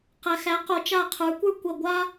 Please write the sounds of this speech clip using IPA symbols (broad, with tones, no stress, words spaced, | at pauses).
qæ˨xæ˨˥qo˨˩˦ t͡ʃa˦˨qʰə˞˨˥kʷə˞˥ kʷɐ˦˨ ɡʷa˥